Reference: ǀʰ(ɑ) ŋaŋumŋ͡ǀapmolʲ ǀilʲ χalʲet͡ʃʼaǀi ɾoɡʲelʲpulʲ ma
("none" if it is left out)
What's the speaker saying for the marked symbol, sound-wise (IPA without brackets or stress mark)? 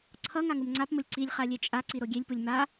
ʌ